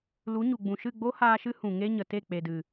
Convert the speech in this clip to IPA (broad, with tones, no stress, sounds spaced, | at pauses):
l u˨˦ ɲ u˨ ɡ͡b ũ˨ ʃ ɨ˦˨ ɡ͡b o˦ h aː˧ ʃ ɨ˦ h ũ˨ ŋ e˦ ɲ ə˨ t e˦˨ k͡p e˨ d ɨ˨